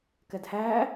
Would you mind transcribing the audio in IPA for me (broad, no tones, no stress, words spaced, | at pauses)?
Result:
kɛdhæː